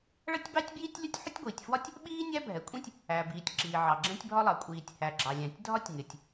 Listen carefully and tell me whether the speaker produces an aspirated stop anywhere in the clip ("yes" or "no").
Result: no